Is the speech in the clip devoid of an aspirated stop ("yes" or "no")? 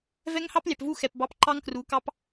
yes